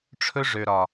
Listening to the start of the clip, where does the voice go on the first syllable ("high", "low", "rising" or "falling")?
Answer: high